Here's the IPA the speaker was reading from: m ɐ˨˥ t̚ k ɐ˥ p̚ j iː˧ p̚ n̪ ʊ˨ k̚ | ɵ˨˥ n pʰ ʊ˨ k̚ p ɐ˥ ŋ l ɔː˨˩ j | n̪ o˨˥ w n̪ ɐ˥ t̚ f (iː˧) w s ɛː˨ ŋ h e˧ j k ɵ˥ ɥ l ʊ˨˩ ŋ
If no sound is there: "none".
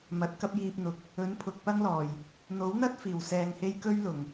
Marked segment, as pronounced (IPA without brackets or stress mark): iː˨˩